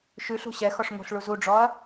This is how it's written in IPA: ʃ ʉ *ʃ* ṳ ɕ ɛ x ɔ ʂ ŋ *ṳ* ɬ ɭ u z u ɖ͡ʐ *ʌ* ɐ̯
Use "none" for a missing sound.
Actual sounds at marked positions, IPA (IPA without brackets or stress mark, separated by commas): ɬ, o̤, ɔ